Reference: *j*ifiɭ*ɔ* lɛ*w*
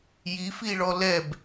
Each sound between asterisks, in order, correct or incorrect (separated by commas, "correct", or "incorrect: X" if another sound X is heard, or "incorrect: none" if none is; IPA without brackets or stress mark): correct, correct, incorrect: b